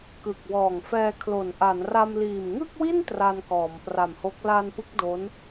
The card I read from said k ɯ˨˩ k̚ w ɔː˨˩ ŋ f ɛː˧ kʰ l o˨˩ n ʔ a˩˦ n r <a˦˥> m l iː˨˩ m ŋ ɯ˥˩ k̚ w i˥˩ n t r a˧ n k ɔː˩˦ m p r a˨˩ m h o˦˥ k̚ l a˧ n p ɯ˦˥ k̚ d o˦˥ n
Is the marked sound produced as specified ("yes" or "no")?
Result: no